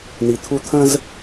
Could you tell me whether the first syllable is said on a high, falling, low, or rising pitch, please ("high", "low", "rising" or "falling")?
low